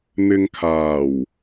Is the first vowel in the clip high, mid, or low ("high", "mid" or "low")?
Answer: high